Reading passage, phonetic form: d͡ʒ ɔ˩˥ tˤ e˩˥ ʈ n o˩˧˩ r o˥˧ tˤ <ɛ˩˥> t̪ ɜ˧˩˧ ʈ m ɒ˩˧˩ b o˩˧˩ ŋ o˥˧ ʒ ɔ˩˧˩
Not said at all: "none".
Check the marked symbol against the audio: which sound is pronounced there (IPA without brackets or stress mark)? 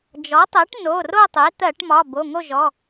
e˩˥